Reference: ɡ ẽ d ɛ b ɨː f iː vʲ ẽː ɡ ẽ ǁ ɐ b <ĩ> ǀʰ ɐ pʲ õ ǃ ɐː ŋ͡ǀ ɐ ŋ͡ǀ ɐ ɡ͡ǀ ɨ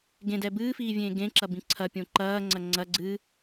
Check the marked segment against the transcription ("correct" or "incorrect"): correct